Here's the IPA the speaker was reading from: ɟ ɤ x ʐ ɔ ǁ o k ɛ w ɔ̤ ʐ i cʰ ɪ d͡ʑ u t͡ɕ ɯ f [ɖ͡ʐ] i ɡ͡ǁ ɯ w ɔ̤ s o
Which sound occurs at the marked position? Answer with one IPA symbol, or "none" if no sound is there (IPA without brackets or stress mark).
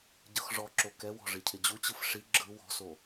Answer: ʂ